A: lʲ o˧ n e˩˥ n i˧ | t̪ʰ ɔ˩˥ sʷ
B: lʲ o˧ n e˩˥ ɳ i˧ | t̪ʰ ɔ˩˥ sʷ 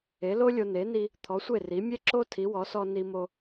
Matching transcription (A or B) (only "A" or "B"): A